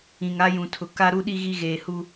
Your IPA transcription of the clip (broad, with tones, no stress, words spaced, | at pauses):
ĩ˨ŋa˦jũ˨tʰʊ˨ ka˦ ɾu˦ɗi˦ ɣi˦ɣeː˨hu˦